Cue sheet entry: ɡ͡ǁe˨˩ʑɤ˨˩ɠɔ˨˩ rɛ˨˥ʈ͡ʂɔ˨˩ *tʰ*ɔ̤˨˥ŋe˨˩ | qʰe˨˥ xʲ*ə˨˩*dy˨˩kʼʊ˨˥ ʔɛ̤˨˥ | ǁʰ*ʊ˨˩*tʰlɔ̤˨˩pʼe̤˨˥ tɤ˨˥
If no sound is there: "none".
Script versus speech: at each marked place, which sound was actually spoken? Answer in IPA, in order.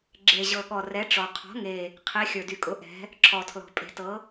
qʰ, ə˞˨˩, ɔ˨˩

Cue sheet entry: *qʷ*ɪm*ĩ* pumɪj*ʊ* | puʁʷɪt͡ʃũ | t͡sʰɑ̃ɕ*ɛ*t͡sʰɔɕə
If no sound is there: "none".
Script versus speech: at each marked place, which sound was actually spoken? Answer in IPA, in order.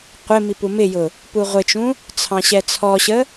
qʷ, i, ʊ, ɛ

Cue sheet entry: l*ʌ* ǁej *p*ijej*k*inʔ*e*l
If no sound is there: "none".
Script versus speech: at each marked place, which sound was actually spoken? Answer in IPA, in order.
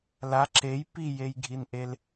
a, p, ɡʱ, e

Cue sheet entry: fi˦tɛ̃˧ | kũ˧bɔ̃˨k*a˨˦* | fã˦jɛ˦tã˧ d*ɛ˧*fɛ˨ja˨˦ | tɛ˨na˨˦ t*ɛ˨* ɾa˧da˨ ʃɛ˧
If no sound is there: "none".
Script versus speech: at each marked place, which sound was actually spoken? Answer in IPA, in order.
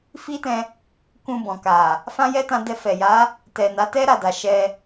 a˨, ɛ˧, ɛ˦

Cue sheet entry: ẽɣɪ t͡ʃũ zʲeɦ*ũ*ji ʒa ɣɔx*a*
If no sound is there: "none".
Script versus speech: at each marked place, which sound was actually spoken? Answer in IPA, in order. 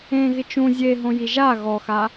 õ, a

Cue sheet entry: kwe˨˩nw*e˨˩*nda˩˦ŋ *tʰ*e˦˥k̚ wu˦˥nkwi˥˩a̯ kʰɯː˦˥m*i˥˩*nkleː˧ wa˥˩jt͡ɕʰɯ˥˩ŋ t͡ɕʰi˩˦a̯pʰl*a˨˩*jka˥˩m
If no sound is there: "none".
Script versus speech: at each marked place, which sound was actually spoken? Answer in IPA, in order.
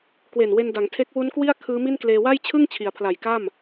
e˧, tʰ, i˥˩, a˨˩

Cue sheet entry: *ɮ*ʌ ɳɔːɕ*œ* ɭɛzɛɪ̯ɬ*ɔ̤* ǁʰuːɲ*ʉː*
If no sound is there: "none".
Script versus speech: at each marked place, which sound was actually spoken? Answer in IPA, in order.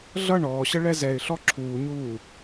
ɮ, ə, ɔ, uː

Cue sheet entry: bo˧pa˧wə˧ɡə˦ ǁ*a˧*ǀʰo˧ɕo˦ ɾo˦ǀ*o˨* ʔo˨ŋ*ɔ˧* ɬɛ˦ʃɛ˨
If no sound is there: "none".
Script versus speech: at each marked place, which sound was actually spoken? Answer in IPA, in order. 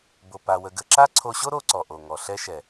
a˦, ɔ˨, ɔ˨

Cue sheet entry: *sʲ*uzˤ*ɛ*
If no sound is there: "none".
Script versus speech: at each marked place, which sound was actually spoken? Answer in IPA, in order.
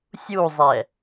sʲ, ɛ

